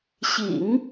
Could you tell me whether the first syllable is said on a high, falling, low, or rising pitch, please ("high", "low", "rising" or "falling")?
low